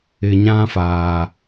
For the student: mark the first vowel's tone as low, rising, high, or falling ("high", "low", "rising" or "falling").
low